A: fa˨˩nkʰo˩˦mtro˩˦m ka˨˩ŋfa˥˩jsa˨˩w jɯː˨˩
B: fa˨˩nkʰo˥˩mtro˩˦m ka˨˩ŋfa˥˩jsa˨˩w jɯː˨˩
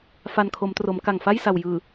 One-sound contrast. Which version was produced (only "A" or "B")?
A